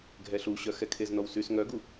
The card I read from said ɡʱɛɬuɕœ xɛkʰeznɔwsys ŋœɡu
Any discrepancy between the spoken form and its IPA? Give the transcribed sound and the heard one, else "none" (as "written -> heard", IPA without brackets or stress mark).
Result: none